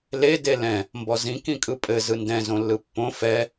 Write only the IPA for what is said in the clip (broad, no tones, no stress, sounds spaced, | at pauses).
l e d e l ɛ̃ | m b ɔ z ĩ k ĩ kʼ ɯ pʼ ɘ z ɯ n d ɛ̃ z õ lː ɯ pː õ f ɛ